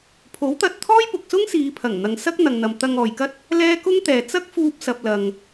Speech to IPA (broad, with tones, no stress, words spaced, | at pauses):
pʰo˨˥wt̪ɐ˧t̚t̪ʰɔː˥j pʊ˨k̚sʊ˥ŋsiː˨˧pʰɐ˨˩ŋ n̪ɐ˨ŋsɐ˥k̚ n̪ɐ˨ŋ n̪ɐ˨mt̪ɐ˧ŋɔː˨jkɐ˥t̚ | lɛː˥ kʊ˥ŋt̪ɛː˨ t͡sɐ˥k̚ fuː˧p̚ sɐ˨p̚lɐ˨ŋ